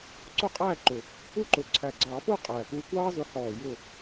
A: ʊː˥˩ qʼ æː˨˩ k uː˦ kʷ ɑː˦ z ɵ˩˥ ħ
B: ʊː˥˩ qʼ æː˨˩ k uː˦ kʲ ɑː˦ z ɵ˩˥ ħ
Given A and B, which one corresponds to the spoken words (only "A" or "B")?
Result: A